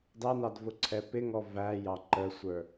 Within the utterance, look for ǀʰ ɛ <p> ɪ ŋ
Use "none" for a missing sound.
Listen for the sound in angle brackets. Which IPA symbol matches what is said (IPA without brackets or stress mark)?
p